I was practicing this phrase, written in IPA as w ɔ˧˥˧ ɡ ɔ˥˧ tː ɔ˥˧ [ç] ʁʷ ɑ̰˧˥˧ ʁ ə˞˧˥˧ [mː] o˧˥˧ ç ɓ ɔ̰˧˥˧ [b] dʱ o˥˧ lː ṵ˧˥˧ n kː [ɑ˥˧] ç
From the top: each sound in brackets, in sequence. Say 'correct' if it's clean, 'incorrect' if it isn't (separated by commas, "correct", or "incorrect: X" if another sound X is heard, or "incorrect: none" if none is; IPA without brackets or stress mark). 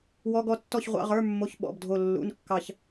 correct, correct, correct, correct